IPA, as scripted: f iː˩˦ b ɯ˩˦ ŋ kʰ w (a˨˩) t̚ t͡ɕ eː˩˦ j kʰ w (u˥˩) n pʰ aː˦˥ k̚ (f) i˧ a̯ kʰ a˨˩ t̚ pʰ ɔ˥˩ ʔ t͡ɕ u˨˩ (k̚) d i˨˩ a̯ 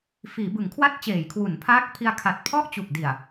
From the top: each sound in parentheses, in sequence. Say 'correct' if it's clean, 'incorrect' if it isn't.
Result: incorrect, incorrect, incorrect, correct

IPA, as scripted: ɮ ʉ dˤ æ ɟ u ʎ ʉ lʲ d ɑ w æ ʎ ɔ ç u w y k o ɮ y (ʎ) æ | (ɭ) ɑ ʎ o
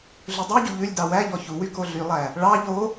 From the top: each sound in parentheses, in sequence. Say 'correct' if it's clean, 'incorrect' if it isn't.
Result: incorrect, correct

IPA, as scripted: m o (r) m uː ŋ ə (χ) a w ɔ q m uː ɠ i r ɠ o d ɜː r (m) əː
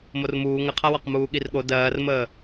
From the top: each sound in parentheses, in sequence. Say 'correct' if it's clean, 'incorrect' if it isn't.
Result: correct, incorrect, correct

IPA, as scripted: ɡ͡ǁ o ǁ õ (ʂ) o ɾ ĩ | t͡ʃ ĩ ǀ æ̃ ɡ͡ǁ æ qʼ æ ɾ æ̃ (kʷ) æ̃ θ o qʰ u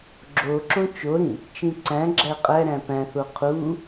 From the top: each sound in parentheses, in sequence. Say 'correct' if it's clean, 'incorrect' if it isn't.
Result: incorrect, incorrect

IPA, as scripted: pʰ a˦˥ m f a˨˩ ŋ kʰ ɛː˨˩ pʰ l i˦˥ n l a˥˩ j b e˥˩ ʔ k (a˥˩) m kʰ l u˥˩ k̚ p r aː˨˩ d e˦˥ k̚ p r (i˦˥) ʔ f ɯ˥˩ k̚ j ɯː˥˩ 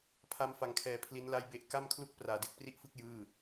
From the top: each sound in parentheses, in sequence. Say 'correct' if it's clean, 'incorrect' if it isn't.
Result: correct, incorrect

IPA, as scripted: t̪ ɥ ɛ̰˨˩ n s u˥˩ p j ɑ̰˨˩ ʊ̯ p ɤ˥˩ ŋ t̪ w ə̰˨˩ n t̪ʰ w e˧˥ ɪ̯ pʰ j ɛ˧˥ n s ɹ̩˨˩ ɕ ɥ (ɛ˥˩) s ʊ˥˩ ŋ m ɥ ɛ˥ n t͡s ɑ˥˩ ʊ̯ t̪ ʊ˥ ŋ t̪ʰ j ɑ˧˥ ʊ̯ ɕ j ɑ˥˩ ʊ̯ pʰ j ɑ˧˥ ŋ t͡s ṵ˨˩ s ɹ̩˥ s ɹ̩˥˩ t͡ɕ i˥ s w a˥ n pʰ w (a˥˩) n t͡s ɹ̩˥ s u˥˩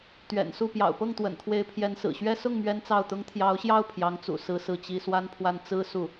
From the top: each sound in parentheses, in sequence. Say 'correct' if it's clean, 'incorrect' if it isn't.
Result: incorrect, correct

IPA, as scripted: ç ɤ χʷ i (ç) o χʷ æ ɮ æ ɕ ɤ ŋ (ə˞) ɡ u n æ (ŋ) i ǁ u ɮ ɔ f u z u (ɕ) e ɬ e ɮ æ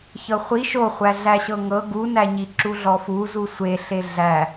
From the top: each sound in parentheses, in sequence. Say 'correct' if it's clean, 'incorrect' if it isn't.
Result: incorrect, incorrect, incorrect, incorrect

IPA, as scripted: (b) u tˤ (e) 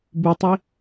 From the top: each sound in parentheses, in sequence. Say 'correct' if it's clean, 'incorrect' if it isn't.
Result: correct, incorrect

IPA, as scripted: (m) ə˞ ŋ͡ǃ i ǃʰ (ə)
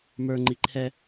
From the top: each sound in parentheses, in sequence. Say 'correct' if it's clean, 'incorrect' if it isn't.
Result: correct, incorrect

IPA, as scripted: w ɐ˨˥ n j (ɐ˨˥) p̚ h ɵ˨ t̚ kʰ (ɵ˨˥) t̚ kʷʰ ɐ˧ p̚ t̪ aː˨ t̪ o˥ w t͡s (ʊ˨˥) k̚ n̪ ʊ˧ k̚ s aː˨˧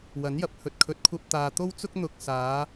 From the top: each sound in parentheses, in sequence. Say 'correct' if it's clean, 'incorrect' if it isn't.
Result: incorrect, correct, incorrect

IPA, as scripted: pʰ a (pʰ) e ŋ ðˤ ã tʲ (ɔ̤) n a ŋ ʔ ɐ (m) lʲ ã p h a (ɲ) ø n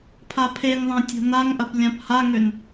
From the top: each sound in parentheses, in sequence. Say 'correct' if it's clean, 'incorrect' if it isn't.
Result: correct, correct, incorrect, incorrect

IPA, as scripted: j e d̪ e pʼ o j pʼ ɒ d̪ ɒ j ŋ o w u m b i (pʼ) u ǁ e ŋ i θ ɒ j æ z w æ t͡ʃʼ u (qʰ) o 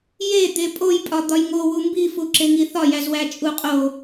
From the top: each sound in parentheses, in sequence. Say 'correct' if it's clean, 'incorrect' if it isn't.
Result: incorrect, incorrect

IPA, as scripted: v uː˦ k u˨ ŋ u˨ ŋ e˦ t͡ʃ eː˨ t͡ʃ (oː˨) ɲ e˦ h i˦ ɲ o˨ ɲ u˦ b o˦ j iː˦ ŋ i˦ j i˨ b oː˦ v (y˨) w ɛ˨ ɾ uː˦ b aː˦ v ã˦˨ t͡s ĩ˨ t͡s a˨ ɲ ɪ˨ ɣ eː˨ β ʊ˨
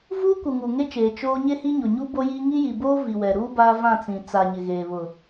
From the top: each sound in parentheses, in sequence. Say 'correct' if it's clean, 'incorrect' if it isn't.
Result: incorrect, incorrect

